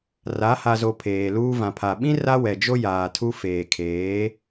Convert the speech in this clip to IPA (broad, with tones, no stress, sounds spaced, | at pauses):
r a˨˦ h a˨ z o˨ pʰ eː˨ l uː˦ v ã˨ pʰ a˨ ɓ ĩ˦ r a˦ w ɛ˨ d͡ʒ o˦ j aː˨ tʰ u˦ f eː˨ kʰ eː˨˦